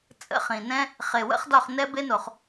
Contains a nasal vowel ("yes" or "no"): yes